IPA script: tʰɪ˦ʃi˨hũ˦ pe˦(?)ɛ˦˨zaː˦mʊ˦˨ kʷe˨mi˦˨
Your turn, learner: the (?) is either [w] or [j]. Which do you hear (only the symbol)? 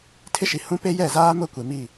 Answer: j